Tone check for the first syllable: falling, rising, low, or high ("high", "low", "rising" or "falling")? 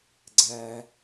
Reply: high